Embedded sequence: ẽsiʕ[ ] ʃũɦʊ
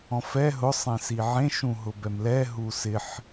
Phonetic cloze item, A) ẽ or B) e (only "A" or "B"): A